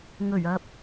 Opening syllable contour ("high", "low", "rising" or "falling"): low